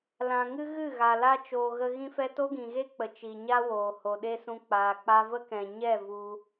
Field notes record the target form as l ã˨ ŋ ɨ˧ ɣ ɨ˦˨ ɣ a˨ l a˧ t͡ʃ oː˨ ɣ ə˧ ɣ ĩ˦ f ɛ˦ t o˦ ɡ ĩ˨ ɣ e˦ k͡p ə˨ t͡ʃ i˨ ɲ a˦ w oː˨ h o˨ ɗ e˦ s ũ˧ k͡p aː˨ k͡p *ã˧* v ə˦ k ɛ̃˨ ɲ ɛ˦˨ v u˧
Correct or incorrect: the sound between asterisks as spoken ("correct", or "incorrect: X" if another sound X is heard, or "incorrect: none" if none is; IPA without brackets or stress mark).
incorrect: a˧